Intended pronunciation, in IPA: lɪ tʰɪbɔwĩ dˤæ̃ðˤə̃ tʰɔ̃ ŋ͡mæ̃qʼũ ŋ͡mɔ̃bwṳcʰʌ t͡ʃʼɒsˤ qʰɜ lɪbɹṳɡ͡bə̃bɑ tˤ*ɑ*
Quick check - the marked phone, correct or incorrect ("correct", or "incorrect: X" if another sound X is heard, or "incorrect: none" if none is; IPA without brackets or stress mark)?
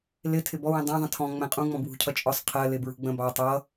incorrect: ʌ